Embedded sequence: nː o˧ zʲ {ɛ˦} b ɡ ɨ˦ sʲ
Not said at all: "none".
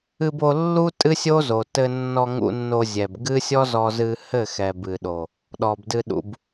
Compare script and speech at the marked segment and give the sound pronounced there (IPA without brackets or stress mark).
ɛ˨